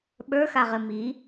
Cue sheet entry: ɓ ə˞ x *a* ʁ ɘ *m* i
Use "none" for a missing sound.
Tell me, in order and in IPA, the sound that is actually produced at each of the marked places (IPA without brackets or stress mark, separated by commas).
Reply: a, m